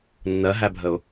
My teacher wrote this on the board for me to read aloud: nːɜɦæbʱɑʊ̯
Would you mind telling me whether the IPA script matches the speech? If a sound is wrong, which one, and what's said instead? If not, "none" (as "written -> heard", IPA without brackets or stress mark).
ɑ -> ə